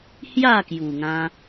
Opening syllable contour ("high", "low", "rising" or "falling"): falling